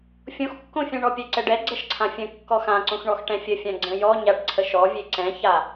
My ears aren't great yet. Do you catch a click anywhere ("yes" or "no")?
yes